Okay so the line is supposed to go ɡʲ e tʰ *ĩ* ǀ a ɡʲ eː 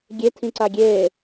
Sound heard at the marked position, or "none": ĩ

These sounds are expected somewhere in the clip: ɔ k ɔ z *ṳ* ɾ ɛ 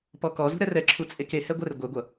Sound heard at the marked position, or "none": ṳ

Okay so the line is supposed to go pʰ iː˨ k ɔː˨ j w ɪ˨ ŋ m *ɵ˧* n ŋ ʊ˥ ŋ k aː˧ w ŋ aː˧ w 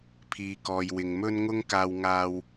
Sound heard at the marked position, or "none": ɵ˥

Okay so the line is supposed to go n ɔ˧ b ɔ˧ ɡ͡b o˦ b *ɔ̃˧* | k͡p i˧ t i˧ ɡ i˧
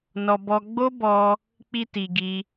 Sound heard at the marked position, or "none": ɔ˧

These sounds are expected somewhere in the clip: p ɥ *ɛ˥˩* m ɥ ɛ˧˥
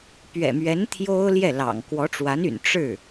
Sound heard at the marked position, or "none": ɛ̰˨˩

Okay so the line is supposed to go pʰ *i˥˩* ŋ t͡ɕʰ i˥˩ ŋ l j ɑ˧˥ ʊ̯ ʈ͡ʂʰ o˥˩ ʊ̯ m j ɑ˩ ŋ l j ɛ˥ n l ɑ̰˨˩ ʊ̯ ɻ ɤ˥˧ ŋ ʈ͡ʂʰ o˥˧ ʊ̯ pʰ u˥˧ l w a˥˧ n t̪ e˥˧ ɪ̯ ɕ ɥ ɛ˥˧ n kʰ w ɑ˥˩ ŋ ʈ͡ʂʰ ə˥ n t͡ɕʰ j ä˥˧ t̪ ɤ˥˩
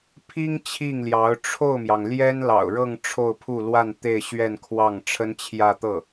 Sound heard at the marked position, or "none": i˥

